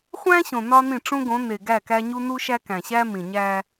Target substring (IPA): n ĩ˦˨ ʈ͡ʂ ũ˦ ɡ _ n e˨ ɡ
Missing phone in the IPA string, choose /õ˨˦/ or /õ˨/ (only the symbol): õ˨˦